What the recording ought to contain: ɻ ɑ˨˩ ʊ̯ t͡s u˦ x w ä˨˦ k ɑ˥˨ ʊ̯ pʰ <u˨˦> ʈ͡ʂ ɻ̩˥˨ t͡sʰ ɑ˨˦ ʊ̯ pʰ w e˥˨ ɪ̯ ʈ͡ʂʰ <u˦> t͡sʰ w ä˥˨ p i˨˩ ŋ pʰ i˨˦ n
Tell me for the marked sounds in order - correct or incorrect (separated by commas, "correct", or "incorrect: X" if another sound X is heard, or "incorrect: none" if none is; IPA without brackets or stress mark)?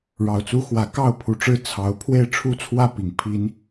correct, correct